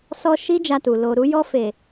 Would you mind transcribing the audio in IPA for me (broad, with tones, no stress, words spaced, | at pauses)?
sɔ˧ ʃi˦d͡ʒa˧tu˨ lo˨ɾu˧jɔ˧fe˨